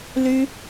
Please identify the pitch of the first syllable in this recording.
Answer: high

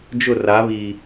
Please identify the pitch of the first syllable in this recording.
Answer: falling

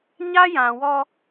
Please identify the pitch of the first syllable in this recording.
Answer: high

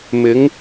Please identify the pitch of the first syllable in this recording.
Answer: rising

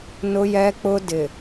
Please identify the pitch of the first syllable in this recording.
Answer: high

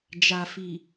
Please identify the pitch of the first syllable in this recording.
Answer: low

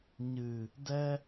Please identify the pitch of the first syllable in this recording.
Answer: low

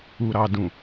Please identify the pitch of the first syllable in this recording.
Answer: low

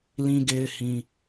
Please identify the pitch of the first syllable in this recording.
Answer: high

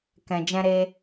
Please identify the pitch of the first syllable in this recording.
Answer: low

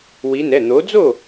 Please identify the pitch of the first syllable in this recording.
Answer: rising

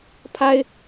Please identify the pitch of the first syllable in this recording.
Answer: high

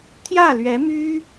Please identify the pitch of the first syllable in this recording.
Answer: falling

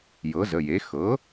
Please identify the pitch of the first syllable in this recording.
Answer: rising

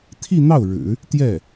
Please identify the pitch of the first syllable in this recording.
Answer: falling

